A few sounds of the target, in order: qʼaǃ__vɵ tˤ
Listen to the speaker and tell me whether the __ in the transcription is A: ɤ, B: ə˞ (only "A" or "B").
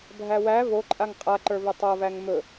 B